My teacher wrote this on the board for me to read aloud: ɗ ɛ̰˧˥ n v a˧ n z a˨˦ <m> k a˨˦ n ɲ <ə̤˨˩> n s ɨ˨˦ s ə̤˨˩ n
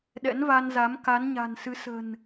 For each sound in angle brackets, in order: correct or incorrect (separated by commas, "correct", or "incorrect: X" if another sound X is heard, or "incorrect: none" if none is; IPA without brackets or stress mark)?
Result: correct, incorrect: a̤˨˩